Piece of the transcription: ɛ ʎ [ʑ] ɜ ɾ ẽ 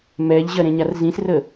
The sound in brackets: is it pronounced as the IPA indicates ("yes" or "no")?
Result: yes